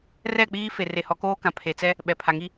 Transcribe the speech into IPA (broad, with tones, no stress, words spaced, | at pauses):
rɛ˦˨k͡piː˦ fe˨re˨hɔ˨˦ koː˦kã˨ pʰe˨t͡sɛ˦ | ɓɛ˨pʰa˨ŋi˦